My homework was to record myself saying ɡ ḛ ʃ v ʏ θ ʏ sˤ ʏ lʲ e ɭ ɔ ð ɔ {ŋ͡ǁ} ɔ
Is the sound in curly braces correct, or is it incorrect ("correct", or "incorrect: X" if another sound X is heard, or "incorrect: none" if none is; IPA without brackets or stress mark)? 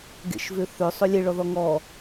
incorrect: ŋ